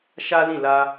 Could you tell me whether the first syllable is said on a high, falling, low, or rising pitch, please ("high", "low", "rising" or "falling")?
high